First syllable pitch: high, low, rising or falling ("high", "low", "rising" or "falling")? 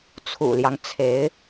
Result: low